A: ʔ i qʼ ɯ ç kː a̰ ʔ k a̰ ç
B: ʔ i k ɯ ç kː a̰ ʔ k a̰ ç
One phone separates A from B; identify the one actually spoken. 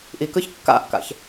B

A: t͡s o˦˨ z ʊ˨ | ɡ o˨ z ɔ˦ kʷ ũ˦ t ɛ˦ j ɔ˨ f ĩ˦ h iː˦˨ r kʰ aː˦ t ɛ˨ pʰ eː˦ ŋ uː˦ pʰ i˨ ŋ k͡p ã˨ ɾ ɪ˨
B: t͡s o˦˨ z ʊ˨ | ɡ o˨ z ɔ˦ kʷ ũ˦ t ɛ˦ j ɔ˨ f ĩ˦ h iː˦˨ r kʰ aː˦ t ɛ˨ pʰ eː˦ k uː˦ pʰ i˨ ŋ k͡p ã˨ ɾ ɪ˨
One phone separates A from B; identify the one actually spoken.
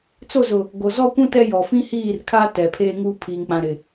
A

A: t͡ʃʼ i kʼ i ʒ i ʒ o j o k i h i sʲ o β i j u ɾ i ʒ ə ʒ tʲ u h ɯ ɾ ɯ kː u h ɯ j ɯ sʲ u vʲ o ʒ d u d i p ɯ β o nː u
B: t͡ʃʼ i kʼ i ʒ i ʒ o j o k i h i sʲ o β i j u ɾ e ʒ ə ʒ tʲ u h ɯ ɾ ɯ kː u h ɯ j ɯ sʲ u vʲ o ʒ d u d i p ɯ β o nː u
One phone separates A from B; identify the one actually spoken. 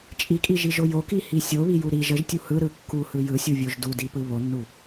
A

